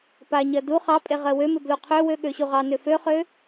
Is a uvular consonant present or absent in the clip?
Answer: present